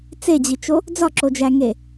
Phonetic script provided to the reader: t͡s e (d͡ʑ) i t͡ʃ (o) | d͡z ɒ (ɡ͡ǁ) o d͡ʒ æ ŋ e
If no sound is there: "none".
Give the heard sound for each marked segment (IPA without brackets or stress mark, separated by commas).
d͡ʑ, o, ǁ